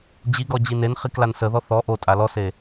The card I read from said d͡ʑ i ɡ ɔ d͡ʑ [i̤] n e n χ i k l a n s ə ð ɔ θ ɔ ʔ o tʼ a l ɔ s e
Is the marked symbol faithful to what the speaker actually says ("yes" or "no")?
no